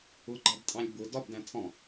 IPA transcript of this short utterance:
ʊɡ͡ǃɑbtʼɑ̃lʲ bʊ dɒbdæ̃ tʰɔ̃

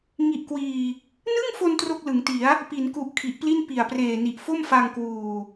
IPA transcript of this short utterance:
ŋi˨˩ʔkwiː˨˩ | nɯ˥˩ŋfo˧n tro˥˩k̚lɯ˩˦ŋti˩˦a̯ | pi˩˦nku˨˩ʔ kʰi˨˩ʔpli˥˩n pi˨˩a̯preː˨˩ni˨˩ʔ fo˥˩mfa˧ŋkwuː˨˩

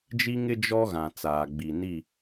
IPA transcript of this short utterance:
d͡ʒi˦ŋɪ˦ d͡ʒɔ˦ɣã˨ t͡saː˨ɡ͡bi˨ni˦˨

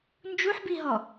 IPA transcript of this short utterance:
nd͡ʒuħbiɦɔ

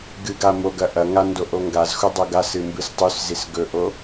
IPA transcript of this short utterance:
ɡɨɡa moɡɐ ʔɐŋa ndoʔoŋɡazxu dˤoɡasɨ mbɨstˤʉszis ɡɵʔo

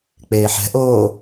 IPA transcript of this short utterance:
k͡peːħɛ̤ʔoː

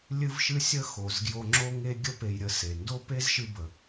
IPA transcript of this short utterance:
lʲɨ˧vʃɨ˧ sʲə˥xo˩zɡjo˧ ŋ͡ǁo˥ŋe˥ ɡʲə˥pe˧jɾʲə˧ se˩ndo˥ pe˥zʃɨ˧bə˩

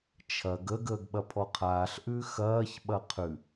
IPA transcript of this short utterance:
t͡ʃʰɐɡ ə ɡəːɡɓɐpʰɔqʰaːɬ ʔʉxɐːç ɓɐqʰʉ

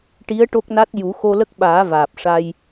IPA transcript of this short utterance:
ʈi˧˥ə̯ ʈo˦˥k̚na˦˥t̚ ju˨˩˦xo˧lə˦˥k̚ɓaː˨˩˦ vaː˨˩p̚ʂa˧j

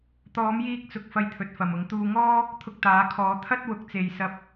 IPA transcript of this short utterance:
t̪ɔː˨˧mjiː˧k̚t͡sʊ˨k̚ fɐ˧jt̪ʰɵ˨t̚ fɐ˨mʊ˨˧ŋ t̪uː˧ŋɔː˥ | t̪ʰʊ˧k̚t̪aː˨˧kʰɔː˨˧ t̪ʰɐ˥t̚wʊ˧k̚t͡se˧j sɐ˥p̚

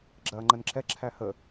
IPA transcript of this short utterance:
ɡ͡ǁɐːŋ͡ǃənǁɛ ǁʰæhə

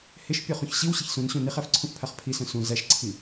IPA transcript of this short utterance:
hɪʃ pʲɔχũçɕiw ɕiçsũnɕũ niχæfǀʰũfpʰaχ pʰisœ̃ sũ zæʃǀʰi

